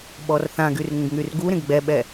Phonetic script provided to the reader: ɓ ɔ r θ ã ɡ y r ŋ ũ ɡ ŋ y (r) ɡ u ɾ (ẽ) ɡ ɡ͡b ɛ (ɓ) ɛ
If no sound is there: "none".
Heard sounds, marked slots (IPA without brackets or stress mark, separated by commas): r, ẽ, ɓ